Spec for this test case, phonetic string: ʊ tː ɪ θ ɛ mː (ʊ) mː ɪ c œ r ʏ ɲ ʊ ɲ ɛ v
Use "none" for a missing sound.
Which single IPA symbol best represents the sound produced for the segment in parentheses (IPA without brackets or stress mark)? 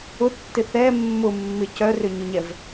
ʊ